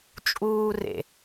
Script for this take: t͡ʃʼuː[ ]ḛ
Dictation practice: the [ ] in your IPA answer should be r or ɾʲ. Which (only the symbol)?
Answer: r